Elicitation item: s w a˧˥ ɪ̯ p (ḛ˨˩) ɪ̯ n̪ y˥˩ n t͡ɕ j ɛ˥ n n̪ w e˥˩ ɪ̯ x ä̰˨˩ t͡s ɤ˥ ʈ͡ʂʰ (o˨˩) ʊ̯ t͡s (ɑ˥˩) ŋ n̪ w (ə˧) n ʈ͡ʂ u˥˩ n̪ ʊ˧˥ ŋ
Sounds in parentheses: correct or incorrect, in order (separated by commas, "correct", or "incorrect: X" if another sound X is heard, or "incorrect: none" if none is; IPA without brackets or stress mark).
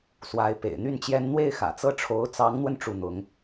correct, incorrect: o˧˥, incorrect: ɑ˧˥, correct